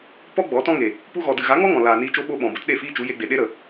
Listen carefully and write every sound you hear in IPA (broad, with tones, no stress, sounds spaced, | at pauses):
p ɔ˦ ɡ͡b ɔ˨˦ t ɔ̃˦ ŋ e˨ | p u˧ ɣ ɔ˨ d ɨ˨ ɣ a˨˦ ŋ ɔ˦ ŋ ɔ̃˨ l aː˨ n iː˧ t͡ʃ o˦ ɓ o˦ ɓ ɔ̃˨ b ə˦ t ɗ e˦˨ f iː˦ t͡ʃ u˨˦ j e˧ ɡ͡b e˨ ɗ e˦ ɾ ə˨